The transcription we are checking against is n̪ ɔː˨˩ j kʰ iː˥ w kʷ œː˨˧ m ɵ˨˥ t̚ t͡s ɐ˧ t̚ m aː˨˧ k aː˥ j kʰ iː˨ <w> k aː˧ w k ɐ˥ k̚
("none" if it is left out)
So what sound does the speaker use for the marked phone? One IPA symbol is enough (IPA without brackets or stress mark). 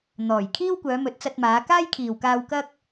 w